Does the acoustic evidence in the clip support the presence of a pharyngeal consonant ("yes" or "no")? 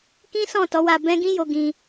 no